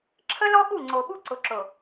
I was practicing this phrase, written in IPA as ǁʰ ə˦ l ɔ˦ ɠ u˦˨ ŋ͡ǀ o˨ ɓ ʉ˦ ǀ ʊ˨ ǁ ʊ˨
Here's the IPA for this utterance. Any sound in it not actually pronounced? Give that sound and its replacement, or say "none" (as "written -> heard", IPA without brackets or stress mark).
ʉ˦ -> u˦